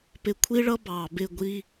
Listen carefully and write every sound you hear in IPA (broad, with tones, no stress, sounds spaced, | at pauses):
p ɪ˧ kʷʰ i˦ ɭ ʌ˦ b ɑ˨ b ɪ˦˨ ɡʷ i˦